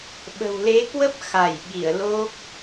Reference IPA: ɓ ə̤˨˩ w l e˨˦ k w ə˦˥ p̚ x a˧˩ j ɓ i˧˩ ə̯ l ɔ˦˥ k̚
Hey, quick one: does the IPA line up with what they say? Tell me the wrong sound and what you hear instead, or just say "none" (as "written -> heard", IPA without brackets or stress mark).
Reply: ɔ˦˥ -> o˦˥